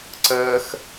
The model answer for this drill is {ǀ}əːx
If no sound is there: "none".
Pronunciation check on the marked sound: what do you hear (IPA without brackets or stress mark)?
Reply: ǀ